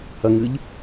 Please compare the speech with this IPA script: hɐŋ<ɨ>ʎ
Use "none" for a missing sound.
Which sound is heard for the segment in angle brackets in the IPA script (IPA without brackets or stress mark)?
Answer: ɨ